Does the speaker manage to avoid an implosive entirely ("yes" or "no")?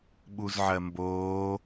no